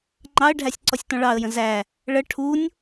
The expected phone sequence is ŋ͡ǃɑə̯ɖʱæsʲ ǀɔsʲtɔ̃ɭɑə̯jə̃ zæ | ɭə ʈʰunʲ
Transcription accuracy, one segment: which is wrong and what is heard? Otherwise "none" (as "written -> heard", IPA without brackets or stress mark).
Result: none